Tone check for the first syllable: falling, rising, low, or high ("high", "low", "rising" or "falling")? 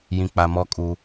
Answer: low